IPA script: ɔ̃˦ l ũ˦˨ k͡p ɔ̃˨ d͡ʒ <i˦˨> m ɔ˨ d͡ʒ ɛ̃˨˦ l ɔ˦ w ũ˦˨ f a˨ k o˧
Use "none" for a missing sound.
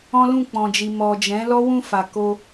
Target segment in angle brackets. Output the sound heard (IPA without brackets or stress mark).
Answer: i˨